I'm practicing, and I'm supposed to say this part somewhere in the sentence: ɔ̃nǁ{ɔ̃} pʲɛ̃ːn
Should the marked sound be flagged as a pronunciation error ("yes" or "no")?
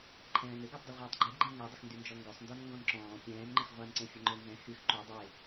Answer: yes